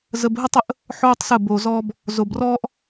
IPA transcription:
z ə˧ b ɦ ə˦ tˤ ə˨˦ ʔ | ħ oː˦ tˤ s ə˦˨ b oː˨ z ɔː˧ b | z o˧ b r ɔː˦ ʔ

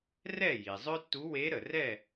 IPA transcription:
r ɛ˥˨ j i˩ zˤ œ˥ tː u˧˥ w e˧˥ ɾ ə˩ r ɛ˥˨

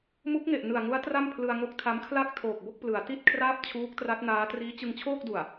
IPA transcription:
m u˦˥ k̚ ŋ e˨˩ ʔ n ɯ˨˩ a̯ ŋ u˦˥ a̯ t r a˥˩ m pʰ l ɯ˧ a̯ ŋ o˦˥ k̚ tʰ a˦˥ m kʰ l a˥˩ k̚ tʰ oː˨˩ k̚ b o˥˩ k̚ p l ɯ˩˦ a̯ t i˥˩ t̚ kʰ r aː˥˩ p̚ t͡ɕʰ uː˦˥ k̚ t r a˦˥ t̚ n aː˦˥ t r iː˦˥ t͡ɕ ɯ˧ ŋ t͡ɕʰ oː˥˩ k̚ d u˨˩ a̯

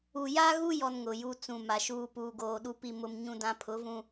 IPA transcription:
u˨ j a˦ ɣ u˦ j ɔ˦ n ŋ ʊ˨ j u˦ t͡s ũ˨ m a˨ ʃ uː˦ p uː˨ ɡ oː˨ ɗ u˦ p i˦ m ʊ˦ m ɲ ũ˦ d ã˦ pʰ ʊ˨˦ v ũ˦

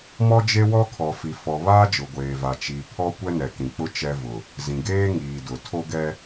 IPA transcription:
m ɔ˦ d͡ʒ e˦ w ɔ˦ kʰ ɔ˨ f i˨ f ɔ˨ β aː˦ d͡ʒ ʊ˨ ɡʷ eː˨ v a˨ t͡ʃ i˨ pʰ ɔ˦ kʷ ɛ˦ n ɛ˨ k ĩ˨ k͡p ʊ˦ t͡ʃ ɛ˦ v ʊ˨ | z ĩ˨ ɡ eː˦ ŋ iː˨ d ʊ˨ tʰ o˦ ɡ ɛ˦

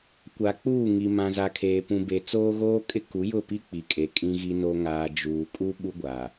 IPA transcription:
kʷ a˨ k͡p uː˦˨ ŋ i˨ m ã˨ z a˨ kʰ eː˨ p ũ˨ b e˨ t͡s oː˦ ɣ oː˦ kʼ ɪ˦ k u˨˦ j ʊ˦˨ p i˦ k͡p i˨ kʼ e˨ kʼ ĩ˦ ɣ i˦ n o˦ ŋ aː˨ d͡ʒ uː˨ kʼ u˦ ɓ u˦ ɡʷ a˨

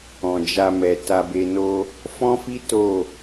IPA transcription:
ɔ̃˨ d͡ʒ a˧ m ɛ˨ t a˧ b e˧ n o˧ | f ɔ̃˦ f i˦ t o˦˨

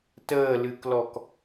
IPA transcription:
t əː l ɨ k l ɔ k

